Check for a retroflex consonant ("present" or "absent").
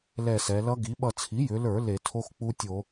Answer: absent